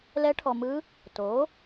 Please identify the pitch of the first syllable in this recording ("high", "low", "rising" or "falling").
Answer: rising